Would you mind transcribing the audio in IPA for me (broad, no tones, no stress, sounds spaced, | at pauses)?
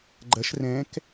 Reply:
ɡ͡ǃ ɐ ʃ r ɛ̃ k